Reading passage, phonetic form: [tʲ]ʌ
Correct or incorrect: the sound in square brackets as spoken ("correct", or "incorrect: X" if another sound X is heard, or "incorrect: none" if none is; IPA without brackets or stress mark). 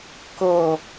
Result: incorrect: k